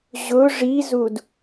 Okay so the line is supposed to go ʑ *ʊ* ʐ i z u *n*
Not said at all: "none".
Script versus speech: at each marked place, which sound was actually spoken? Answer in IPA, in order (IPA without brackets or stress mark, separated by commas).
ʊ, d